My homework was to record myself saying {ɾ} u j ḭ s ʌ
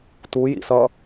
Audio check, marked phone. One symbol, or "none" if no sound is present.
t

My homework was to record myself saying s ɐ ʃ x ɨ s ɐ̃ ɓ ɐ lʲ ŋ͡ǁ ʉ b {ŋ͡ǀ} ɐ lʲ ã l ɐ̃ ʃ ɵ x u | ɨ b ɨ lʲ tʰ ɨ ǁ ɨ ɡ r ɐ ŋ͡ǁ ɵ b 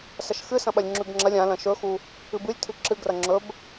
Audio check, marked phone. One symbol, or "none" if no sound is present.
ŋ͡ǁ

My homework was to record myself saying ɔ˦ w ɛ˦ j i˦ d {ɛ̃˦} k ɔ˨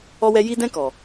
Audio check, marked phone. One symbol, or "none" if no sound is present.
ɛ̃˦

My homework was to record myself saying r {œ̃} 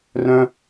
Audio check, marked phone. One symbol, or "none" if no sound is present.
œ̃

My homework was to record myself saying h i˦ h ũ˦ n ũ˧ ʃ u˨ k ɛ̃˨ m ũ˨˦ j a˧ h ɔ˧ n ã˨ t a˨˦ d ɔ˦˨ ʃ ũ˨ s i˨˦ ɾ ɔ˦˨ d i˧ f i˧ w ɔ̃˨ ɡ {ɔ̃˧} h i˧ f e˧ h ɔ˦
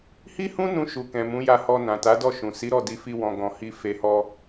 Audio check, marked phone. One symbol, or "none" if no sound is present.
ɔ̃˨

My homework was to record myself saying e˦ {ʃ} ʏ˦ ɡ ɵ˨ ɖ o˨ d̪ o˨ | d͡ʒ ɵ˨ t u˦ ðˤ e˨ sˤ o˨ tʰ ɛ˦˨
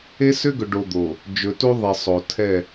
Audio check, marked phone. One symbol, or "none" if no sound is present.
s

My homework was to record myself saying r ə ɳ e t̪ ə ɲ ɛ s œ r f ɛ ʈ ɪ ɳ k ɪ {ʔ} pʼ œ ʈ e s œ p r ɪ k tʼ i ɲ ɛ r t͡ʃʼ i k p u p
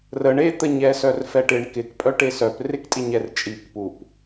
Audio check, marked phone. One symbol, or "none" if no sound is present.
k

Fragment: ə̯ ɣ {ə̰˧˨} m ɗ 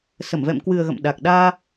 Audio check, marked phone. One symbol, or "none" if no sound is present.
ə̰˧˨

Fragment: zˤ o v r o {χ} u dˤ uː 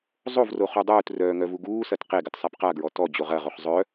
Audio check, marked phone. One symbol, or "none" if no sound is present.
χ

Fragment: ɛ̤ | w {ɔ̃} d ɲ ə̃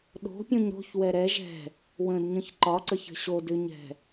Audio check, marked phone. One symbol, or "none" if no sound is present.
ə̃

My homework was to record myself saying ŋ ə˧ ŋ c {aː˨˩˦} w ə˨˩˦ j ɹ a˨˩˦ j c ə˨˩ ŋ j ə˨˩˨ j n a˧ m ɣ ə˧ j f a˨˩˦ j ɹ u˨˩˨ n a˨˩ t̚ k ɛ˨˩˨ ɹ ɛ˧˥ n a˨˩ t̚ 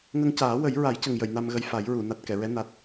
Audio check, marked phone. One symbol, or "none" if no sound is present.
aː˨˩˦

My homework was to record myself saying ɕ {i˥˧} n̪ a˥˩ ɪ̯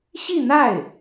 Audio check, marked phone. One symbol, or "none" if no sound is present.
i˥˧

